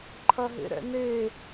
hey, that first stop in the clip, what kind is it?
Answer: click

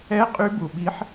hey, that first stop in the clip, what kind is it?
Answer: ejective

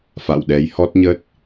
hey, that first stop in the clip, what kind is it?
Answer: implosive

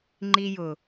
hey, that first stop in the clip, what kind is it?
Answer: click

